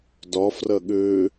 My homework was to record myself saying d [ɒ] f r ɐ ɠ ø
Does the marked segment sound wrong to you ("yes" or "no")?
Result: no